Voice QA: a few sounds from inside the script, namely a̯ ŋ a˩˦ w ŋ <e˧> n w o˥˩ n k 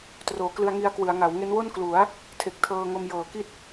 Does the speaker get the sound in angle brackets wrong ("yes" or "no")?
yes